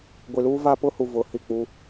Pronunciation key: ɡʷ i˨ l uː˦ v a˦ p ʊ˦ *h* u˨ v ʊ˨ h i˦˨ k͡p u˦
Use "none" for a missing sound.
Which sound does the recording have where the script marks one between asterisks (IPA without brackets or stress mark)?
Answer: h